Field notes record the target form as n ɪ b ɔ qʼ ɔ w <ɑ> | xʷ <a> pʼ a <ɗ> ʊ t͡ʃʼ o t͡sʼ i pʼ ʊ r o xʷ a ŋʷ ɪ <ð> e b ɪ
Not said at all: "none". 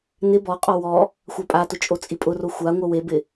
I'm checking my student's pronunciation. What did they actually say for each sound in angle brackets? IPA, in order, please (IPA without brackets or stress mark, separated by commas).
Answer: ɔ, a, t, w